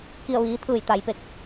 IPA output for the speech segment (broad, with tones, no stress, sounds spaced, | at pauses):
k i˧˩ ə̯ ʋ iː˩˧ t̪ʰ ɯː˧˩ j t̪ a˩ j p e˧˩ k̚